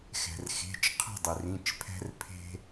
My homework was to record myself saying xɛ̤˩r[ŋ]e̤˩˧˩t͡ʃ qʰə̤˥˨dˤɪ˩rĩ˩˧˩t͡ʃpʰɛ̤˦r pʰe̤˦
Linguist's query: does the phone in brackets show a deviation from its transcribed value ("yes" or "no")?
yes